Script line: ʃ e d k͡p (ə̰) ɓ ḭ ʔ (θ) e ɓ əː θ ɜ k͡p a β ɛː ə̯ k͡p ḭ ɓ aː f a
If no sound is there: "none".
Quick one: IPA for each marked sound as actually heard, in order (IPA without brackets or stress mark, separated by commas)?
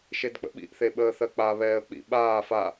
ə̰, θ